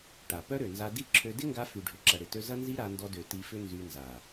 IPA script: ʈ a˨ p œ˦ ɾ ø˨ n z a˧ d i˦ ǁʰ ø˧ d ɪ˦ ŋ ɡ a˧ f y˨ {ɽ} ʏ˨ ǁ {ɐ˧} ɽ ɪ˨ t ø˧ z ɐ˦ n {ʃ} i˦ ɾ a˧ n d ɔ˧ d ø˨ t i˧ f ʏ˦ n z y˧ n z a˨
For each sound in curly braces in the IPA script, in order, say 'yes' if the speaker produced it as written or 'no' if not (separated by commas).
no, no, no